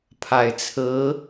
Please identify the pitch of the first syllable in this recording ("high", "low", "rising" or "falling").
low